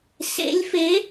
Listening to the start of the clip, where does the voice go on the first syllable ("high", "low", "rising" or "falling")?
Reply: rising